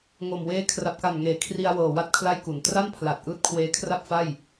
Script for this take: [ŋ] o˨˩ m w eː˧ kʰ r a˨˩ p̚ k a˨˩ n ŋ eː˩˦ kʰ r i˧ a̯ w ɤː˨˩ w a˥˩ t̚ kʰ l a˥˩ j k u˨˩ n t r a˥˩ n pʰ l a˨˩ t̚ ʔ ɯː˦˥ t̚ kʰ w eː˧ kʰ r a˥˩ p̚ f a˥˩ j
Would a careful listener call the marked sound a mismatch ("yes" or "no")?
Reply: no